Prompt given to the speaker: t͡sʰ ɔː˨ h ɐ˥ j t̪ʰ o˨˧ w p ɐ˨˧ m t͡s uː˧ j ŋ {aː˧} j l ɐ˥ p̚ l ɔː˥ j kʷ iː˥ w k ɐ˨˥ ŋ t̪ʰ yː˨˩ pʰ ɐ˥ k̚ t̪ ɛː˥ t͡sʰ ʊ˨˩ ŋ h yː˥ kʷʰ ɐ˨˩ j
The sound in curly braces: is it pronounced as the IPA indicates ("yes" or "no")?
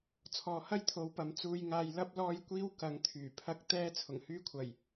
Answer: yes